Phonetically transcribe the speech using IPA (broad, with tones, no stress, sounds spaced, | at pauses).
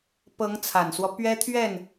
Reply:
p ɤ˧˥ ŋ t͡sʰ a˨˩ n s w ɔ˦ p ɥ ɛ˥ t̪ʰ ɥ ɛ˥˩ n